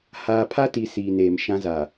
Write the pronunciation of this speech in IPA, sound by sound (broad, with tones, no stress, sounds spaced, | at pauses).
h aː˨ pʰ a˦ t i˨ s iː˨ n eː˨ m ʃ ã˦ z a˨